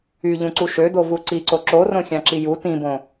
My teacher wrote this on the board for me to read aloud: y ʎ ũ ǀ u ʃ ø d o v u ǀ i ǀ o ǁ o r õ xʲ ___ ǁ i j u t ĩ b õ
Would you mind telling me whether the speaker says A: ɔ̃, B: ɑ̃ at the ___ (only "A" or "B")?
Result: B